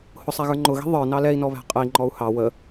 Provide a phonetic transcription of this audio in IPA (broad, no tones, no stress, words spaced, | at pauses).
hʊsˤæɣə˞ ŋ͡ǃʊɣi̤ ðˤə˞nɑ lɛi̯nɔβæ̤ qʼəi̯ ŋ͡ǃɔu̯hɑ wə